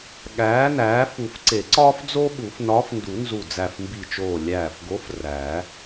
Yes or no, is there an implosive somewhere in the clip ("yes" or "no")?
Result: yes